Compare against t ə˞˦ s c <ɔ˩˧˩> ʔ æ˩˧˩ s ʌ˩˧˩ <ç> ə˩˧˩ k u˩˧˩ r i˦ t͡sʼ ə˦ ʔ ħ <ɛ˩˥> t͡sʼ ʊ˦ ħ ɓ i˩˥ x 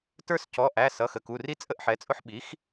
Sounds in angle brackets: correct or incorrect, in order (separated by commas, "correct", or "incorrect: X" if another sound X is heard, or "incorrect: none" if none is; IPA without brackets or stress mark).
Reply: correct, incorrect: x, correct